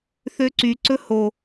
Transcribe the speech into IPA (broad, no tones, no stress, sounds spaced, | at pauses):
θ ø ǀ y ǀ ɵ h o